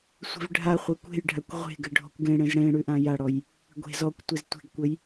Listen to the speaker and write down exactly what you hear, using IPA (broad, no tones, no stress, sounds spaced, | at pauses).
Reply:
sʷ e̤ v ɖʱ a χʷ e kʷ e̤ j ɖʱ a kʷ ʁʷ e̤ ɡ ɘ ɖʱ ɔ̤ kʷ ɡ ẽ ɽ ẽ z ɽ ẽ ɽ ʉ ʔ ã j a ɽ ɔ j | ɡʷ e̤ z ɔ kʷ tʷ e z tʷ e̤ ɡ kʷ ɘ j